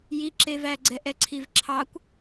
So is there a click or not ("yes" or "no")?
yes